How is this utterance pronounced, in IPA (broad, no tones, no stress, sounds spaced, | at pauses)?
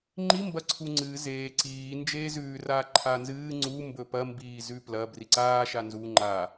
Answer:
ŋ͡ǃ i m b ɐ ǀʰ u ŋ͡ǀ ɨ z eː ǀ iː n d͡ʒ eː z ʉː r aː ǃʰ a n z ɨː ŋ͡ǀ u m b ɵ p ɐ m b iː z ʉ p l ɐ b r i ǀ aː ʃ a n z u ŋ͡ǃ a